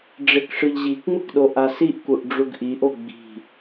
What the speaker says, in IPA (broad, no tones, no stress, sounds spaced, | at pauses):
ɖ͡ʐ e k ʂ ɯ ʎ ʑ i k ŋ͡m ɯ k ɗ o ʔ a s i ʔ k u ʔ ɖ͡ʐ u ɡ ʔ i ʔ o ɡ͡b i̤